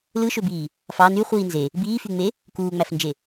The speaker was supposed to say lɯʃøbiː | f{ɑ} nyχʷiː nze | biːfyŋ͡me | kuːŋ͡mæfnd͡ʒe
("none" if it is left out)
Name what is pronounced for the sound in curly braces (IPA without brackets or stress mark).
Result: ɑ